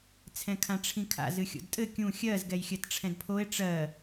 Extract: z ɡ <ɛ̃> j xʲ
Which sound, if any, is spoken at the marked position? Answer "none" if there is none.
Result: ɛ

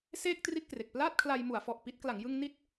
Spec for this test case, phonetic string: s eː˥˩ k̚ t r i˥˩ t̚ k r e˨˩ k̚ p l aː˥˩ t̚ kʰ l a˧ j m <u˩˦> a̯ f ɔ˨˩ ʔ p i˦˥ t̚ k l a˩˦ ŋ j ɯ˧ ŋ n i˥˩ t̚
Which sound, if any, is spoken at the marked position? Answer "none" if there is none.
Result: u˩˦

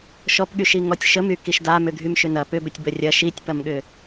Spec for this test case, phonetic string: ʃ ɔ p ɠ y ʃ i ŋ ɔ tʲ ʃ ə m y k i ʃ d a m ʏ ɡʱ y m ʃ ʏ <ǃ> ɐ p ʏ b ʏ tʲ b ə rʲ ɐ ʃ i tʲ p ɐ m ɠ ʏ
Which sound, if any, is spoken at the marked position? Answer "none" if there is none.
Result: n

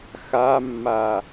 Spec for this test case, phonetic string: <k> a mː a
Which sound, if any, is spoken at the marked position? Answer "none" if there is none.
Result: x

